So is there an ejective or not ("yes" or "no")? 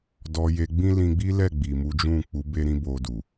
no